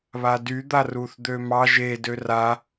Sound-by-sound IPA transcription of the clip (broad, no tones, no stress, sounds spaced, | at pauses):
β a d y d̪ a r u θ d̪ ø m ɑ ʒ e d ø r a